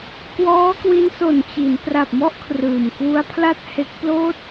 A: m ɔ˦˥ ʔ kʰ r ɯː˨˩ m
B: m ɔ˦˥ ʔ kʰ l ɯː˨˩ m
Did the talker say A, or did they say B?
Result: A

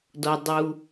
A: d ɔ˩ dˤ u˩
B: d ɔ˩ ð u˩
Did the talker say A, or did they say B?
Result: A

